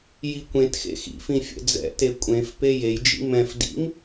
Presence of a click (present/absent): absent